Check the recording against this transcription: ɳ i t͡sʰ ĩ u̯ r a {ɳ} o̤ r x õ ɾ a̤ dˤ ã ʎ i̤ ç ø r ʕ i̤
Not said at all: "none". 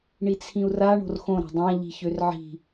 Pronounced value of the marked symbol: ɳ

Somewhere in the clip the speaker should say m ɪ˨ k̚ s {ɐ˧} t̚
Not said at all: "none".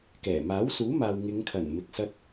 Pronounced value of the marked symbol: ɐ˧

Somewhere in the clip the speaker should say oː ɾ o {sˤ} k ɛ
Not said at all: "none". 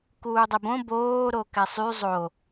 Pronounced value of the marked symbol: none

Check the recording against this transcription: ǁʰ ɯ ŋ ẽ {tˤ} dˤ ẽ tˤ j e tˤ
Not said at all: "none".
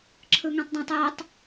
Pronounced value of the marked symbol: tˤ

